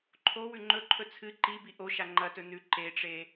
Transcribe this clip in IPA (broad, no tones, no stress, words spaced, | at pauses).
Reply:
ǃʰo wʉŋ͡ǃɵǃʰɵ t͡sʰɨ ǃibi ʔoʃa ŋ͡ǃɐtɵ nʉ ǃeʈ͡ʂe